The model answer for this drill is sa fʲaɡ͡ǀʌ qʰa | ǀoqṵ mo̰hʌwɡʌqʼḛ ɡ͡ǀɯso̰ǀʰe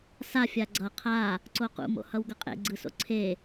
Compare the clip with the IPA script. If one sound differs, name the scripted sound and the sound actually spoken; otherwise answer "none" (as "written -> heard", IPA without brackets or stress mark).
none